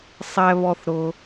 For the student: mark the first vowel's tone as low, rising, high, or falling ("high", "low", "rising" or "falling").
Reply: high